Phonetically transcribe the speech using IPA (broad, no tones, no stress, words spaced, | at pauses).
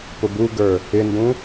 pʊbuɡə˞ | ɪndũ